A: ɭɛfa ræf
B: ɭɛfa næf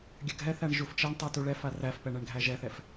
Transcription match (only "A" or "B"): A